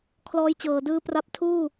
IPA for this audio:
kʰlɔː˦˥jt͡ɕɤː˨˩dɯː˦˥pra˦˥p̚ tʰuː˥˩

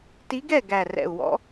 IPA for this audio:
ti˧˥ɡɛ˥˨ ɡæ˨˩rɛ̰˨˩u̯wɔ̰˧˥

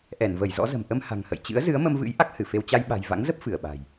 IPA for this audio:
ʔɛ˧˩nvə˧˩jzɔ̰˧˥zə̤˨˩m ʔə˧mha̤˨˩ŋhə̰˧˨j t͡ɕɨ̰˧˥ə̯zɨ˨˦ə̯mə˧mvɨ̰˧˥j ʔa˦˥k̚hɨ˧˩fe˧w t͡ɕa˧jɓa̤˨˩jva̰˧˥ŋzə˦˥p̚ fɨ˧˩ə̯ɓa̤˨˩j

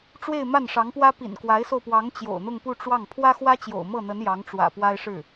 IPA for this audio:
ʈ͡ʂwe˥˧ɪ̯ma˥˩nʂɑ˧˥ŋpwä˥ pḭ˨˩nkwa˧˥ɪ̯so˧ʊ̯pwɑ˧˥ŋ t͡ɕjo̰˨˩ʊ̯n̪ʊ˥˧ŋpu˥˧ ʈ͡ʂwɑ˥˩ŋ pʰwä˥xwä˥t͡ɕjo̰˨˩ʊ̯ mɤ˥˩n̪ə˧˥n jɑ˧˥ŋʈ͡ʂwä̰˨˩ pwa˥ɪ̯ʂɻ̩˥˩

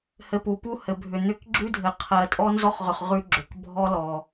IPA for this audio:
hɘ˨pu˩pu˦ hɘ˩bʱʏ˩ n̪ʏ˦kɡ͡ǁʉ˥dʱɘ˨ qʰɜ˨tʼɔ˥nzɔ˥χʁʏ˨χ ʁʉ˦ɡ͡ǁʏ˩k bʱɔ˦lɔ˩

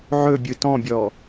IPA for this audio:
ʕɵbʲɯ tɔ̃bʲɔ

